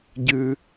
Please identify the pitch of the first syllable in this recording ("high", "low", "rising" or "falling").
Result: high